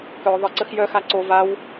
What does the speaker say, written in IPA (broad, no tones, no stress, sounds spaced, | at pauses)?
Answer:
k œ ðˤ ə ǀ ə x j œ x a ǀ o v a w